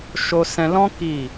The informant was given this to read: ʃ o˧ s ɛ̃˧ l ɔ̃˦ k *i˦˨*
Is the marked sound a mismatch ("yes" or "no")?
no